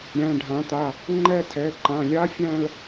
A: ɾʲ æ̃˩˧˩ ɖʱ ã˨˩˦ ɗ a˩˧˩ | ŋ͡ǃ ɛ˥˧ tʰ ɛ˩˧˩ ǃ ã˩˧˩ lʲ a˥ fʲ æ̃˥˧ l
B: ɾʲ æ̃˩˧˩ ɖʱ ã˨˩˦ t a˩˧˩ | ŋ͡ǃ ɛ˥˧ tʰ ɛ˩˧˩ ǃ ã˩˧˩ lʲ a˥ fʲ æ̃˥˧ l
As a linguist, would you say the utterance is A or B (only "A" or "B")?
B